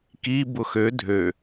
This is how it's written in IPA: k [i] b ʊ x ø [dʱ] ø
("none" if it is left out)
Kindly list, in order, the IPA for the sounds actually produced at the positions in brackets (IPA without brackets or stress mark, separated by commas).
i, dʱ